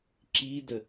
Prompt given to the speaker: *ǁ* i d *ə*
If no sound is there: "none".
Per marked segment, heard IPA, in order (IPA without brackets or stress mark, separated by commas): ǁ, ə